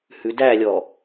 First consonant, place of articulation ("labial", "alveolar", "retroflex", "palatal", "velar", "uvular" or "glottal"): glottal